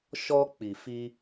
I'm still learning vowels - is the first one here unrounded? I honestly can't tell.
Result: no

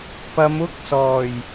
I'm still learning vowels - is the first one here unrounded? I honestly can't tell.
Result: yes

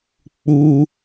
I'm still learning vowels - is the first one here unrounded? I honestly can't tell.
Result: no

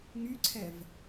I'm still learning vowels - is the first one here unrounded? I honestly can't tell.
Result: no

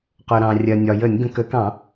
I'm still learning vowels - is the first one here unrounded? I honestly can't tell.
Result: no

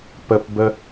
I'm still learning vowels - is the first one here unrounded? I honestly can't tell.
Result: yes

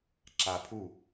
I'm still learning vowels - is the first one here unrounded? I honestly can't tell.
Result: yes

